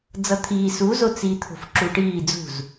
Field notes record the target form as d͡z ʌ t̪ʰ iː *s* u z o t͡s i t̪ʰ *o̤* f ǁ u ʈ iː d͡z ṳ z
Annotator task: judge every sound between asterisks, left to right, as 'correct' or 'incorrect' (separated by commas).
correct, correct